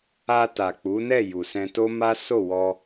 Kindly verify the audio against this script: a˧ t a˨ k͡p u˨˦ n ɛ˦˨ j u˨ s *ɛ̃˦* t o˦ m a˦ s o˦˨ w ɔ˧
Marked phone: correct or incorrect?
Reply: incorrect